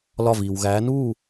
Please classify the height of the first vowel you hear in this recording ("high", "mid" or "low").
low